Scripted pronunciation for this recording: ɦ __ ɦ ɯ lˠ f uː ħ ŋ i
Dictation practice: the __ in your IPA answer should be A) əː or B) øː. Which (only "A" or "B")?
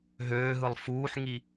B